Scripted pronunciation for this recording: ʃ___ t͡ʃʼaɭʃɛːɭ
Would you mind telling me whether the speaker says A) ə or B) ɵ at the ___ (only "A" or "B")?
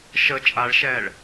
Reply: A